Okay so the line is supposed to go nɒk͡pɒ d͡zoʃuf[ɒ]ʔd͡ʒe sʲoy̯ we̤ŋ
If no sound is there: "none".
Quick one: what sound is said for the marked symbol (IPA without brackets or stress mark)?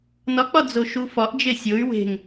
ɒ